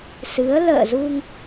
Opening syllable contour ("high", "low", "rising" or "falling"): rising